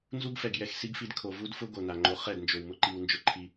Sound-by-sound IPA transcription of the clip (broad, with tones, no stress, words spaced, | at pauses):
nzu˦ɡfɛ˨ɡ jɛ˧x si˦ɡfi˧d kʰo˨ vu˦dfʊ˦ ɡo˨na˨ŋ͡ǃo˧ χɛ˦˨dnd͡ʒo˨w mʊ˦ǃi˧w nd͡ʒʊ˧ǃʰi˧